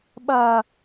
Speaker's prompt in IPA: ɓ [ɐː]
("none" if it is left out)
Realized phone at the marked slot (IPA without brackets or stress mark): ɐː